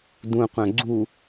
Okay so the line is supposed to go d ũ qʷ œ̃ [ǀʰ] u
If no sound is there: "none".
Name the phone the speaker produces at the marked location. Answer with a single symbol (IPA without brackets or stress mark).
ɡ͡ǀ